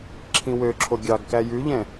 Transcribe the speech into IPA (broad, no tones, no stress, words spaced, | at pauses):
ǁʰĩwøǁʰo ɡʲɑɡkæ jʉʎɛ̃